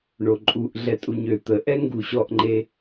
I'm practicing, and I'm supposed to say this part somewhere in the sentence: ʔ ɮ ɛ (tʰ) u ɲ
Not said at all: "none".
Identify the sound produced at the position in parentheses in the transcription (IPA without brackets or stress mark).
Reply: tʼ